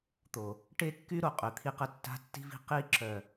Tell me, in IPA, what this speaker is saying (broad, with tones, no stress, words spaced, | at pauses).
t̪o˨ | ʈe˦kːy˦ ɾo˨qʼø˨t̪ʰi˦qə˦ tːa̤˦tːi̤˦vi̤˦ qi˦ ǁœ˨